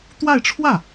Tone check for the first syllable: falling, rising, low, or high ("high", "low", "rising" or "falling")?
falling